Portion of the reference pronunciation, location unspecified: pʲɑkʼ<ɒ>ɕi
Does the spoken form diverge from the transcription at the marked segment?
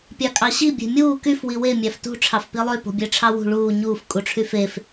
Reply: yes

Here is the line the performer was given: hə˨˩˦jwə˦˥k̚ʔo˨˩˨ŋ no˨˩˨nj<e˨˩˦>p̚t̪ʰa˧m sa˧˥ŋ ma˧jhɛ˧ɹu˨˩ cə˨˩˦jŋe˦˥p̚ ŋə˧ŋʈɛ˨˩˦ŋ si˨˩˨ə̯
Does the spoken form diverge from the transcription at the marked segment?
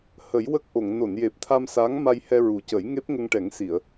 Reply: yes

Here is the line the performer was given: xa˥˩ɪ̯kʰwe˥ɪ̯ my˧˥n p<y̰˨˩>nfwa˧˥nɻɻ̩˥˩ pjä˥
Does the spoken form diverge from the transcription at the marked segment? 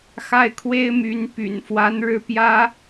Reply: no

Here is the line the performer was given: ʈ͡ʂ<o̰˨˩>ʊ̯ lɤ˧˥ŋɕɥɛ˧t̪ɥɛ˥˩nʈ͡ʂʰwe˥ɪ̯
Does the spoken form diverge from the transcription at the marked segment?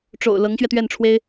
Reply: no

